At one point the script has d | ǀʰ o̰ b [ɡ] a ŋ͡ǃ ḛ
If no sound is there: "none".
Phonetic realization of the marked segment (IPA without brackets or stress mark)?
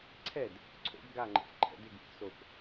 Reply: ɡ